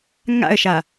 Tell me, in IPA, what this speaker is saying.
ŋa̰ə̯ʃa

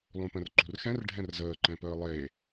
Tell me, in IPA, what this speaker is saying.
lˠũpə̃rǃṳrxɛ̃r ɖʱɛ̃rzəː ǃɛ̃pəːlˠe

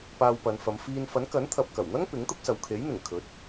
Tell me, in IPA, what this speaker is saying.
paː˧wpɐ˨˧nfɐ˨˧m fiː˧n fɐ˨˥n kɐ˨˥nt̪ʰɐ˨p̚kɐ˨˩wn̪ɐ˥ŋ pɪ˨˥ŋt̪ʊ˥k̚sɐ˨w kʰe˨˥jn̪ɪ˨˩ŋ kʰɵ˨˥t̚

